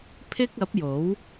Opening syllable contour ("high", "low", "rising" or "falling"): high